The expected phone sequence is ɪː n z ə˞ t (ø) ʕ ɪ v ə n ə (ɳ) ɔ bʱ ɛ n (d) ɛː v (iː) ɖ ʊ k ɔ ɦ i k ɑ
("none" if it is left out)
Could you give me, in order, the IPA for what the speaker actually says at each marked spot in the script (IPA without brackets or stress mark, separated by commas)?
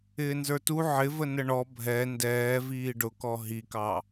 u, ɳ, d, iː